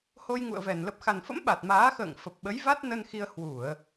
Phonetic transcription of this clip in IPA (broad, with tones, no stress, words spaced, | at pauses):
ho˧jŋṵ˧˨ə̯vɛ˧˩n lə˨˩p̚xa˨˩nfə̰˧˥m ɓa˨˩t̚maː˨˦xə̰ː˧˨ŋ fə˨˩p̚ɓə˨˦j va˦˥t̚nə˧n xi˧ə̯ hwu˧˩˨ə̯